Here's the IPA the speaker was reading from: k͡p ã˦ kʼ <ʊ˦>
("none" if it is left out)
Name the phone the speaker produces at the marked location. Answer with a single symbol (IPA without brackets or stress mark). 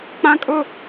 ʊ˦